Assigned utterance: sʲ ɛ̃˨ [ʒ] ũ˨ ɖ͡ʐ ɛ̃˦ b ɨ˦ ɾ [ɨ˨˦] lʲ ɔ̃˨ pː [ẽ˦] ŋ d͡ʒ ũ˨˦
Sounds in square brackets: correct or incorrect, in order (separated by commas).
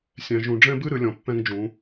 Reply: correct, correct, incorrect